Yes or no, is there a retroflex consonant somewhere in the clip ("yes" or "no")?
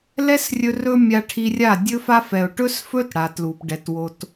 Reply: yes